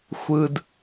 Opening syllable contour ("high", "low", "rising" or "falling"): low